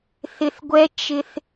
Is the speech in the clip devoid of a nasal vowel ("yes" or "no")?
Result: yes